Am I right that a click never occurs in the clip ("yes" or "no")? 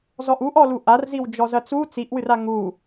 yes